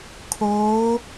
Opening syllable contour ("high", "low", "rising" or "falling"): rising